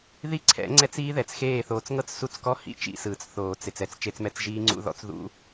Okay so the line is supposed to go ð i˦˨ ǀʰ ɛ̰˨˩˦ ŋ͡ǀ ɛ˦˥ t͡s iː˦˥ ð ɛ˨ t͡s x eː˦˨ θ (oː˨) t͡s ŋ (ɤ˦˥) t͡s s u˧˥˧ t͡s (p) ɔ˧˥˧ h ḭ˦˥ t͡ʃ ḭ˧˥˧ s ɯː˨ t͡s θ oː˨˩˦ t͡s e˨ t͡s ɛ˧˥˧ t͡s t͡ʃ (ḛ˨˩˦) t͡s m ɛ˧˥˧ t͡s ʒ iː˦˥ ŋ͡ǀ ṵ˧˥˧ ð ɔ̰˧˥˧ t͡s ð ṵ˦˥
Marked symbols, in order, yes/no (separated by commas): yes, yes, no, no